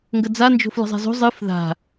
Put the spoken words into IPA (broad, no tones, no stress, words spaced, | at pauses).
ŋɡəd͡za nd͡ʒo̤flə̤zˤa̤zo̤ zˤɨf ða̤